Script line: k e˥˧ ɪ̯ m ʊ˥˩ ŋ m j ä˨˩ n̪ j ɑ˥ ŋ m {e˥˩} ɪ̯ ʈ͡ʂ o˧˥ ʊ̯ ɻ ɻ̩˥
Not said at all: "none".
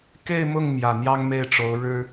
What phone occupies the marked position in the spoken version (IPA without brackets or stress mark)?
e˥˩